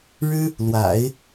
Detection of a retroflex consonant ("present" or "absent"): present